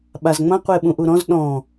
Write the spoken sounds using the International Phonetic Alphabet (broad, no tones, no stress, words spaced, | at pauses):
ɓazŋ͡mɐ̃ qʷeɓũʔuɾɔ̃z ɗɔ̃